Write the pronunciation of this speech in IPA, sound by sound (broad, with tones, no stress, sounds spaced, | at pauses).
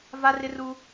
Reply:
v a˦ r ɪ˦ r u˦